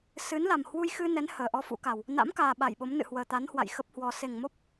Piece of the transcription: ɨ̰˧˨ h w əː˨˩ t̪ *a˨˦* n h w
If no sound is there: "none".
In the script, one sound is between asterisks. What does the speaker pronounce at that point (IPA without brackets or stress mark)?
a˨˦